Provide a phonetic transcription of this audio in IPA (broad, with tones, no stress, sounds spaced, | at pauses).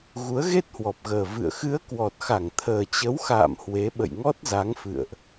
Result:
ɣ u˨˦ ə̯ ɣ e˦˥ t̚ h w ɔ˨˩ p̚ ɣ əː˨˩ v ɨ̰˧˨ ə̯ x ɨ˨˦ ə̯ k w ɔ˨˩ t̚ x a˧˩ ŋ t̪ʰ əː˨˩ t͡ɕ ə˨˦ w x a̰ː˧˨ m h w e˨˦ ɓ ə̰˧˨ j ŋ ɔ˦˥ t̚ z a˨˦ ŋ f ɨ̰˧˨ ə̯ ʔ